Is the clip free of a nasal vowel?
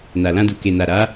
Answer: no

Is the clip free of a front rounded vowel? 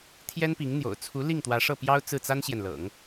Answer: yes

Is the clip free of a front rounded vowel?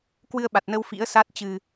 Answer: yes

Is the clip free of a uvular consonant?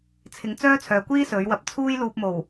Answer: yes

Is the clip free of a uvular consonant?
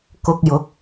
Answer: yes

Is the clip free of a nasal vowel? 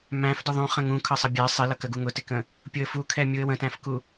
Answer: no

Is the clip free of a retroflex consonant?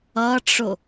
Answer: no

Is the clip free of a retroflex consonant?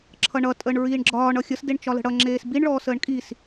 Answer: no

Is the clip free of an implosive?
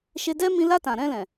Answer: yes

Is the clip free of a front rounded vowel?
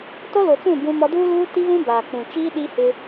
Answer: yes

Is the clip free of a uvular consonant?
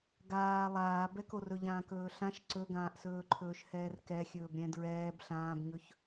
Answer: yes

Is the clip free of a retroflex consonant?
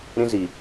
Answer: yes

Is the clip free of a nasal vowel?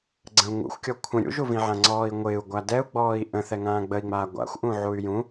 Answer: no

